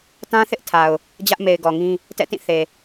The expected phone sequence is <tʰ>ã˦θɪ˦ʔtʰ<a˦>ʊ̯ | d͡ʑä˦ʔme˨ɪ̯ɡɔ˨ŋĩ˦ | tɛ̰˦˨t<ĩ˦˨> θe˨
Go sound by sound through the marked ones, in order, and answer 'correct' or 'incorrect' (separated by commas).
incorrect, incorrect, correct